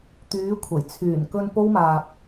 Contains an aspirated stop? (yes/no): yes